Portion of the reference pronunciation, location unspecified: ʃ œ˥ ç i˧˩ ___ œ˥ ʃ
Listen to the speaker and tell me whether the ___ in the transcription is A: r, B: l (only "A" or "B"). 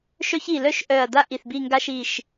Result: B